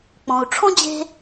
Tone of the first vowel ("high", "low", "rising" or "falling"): low